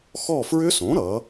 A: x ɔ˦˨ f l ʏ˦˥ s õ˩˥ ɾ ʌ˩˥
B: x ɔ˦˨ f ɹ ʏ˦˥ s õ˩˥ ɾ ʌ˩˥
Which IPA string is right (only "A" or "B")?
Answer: B